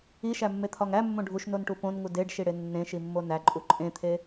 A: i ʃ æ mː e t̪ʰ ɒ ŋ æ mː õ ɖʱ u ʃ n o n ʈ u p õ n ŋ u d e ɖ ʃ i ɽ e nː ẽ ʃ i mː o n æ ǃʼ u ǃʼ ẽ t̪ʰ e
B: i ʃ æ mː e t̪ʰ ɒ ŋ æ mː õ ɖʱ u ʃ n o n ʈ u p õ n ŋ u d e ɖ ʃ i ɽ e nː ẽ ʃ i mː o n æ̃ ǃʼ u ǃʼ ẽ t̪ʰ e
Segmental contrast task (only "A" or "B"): A